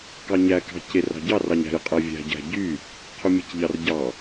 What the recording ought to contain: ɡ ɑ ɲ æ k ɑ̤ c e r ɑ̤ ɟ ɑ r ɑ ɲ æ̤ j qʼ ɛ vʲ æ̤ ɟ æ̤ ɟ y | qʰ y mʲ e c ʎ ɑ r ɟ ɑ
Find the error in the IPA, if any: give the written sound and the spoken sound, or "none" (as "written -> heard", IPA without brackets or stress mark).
ɡ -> k